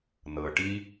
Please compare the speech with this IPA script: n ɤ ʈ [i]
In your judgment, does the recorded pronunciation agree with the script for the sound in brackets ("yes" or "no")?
yes